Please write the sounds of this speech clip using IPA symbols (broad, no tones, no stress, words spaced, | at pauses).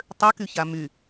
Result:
tˤøkyça my